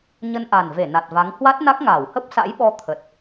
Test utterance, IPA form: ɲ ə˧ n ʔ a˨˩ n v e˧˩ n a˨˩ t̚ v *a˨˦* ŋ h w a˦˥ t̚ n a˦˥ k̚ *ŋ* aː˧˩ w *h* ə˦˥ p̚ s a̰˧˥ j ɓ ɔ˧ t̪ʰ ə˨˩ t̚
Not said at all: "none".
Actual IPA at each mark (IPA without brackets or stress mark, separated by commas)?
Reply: a˨˦, ŋ, h